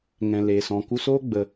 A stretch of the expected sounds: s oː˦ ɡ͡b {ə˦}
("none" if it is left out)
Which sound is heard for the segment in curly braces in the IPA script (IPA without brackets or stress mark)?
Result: ə˧